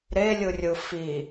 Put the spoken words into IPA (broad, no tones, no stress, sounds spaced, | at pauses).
ɾ e lʲ ɯ rʲ ɯ f i